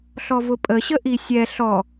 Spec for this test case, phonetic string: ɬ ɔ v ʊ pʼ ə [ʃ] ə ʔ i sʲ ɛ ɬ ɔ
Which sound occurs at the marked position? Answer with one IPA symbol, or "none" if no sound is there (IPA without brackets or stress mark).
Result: ɕ